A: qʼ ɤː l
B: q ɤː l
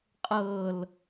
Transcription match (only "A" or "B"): A